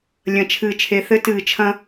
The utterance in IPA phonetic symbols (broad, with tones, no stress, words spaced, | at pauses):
lʲɐ̃˨t͡ʃʰɨː˨t͡ʃʰe˨ θɘ˦tɨː˨t͡ʃʰɐ̃˦